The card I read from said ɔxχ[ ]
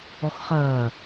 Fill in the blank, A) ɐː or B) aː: A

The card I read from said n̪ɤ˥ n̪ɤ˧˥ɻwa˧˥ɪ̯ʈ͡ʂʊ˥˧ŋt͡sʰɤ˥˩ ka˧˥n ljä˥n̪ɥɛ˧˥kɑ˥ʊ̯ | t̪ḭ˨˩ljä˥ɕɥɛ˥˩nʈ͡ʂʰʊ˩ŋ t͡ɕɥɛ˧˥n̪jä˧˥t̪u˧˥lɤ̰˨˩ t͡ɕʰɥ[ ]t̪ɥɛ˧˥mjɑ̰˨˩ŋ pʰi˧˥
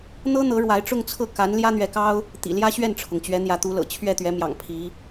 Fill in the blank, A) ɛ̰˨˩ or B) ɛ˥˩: B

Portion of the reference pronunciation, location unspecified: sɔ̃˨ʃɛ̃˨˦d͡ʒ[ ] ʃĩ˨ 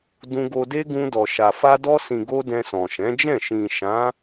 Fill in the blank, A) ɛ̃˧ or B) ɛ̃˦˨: B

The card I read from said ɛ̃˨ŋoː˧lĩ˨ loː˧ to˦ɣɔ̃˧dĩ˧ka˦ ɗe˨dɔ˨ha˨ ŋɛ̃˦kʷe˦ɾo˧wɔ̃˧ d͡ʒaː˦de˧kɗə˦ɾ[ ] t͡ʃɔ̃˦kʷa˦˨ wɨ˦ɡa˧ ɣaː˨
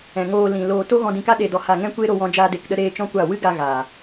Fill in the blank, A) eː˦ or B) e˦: A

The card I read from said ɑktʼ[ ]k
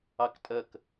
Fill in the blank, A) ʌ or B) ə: B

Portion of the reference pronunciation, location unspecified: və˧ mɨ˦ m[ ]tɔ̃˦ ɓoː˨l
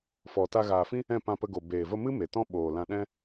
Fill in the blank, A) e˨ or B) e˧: A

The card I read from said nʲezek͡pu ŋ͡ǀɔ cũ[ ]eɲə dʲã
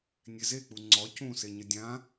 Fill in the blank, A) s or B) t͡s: A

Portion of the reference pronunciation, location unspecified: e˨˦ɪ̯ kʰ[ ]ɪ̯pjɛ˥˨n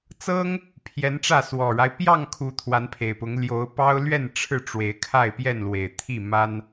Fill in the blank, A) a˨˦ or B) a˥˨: B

